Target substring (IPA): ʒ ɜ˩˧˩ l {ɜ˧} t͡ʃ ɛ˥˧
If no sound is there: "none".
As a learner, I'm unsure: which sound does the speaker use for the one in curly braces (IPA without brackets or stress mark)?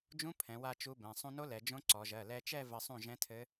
ɛ˧